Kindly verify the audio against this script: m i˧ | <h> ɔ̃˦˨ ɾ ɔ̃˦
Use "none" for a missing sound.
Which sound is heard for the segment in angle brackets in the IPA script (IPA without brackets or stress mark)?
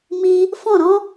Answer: f